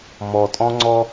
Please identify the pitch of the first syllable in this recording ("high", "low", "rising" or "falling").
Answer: low